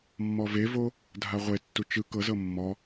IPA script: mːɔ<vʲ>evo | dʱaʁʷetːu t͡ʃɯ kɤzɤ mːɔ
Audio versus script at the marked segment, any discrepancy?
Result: yes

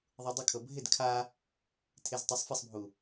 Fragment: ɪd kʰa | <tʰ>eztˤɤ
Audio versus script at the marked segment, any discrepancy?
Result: no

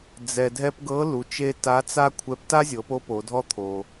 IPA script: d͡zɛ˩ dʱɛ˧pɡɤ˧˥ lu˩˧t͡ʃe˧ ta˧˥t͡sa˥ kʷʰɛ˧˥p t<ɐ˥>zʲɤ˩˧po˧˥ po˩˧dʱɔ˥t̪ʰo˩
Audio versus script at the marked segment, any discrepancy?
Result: yes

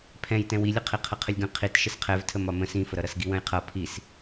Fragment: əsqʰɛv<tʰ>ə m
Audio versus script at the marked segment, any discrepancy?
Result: no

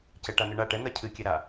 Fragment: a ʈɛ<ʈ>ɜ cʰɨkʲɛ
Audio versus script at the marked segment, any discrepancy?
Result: yes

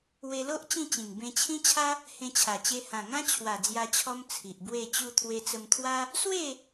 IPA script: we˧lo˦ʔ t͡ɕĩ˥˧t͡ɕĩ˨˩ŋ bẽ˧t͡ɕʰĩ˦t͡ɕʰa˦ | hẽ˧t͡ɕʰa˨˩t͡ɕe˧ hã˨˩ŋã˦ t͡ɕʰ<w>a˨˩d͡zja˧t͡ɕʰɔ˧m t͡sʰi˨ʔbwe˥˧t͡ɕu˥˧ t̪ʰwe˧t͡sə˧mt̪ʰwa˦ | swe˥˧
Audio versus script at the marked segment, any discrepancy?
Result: no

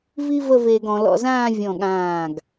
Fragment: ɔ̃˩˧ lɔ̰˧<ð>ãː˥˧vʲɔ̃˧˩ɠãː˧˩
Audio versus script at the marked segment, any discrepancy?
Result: yes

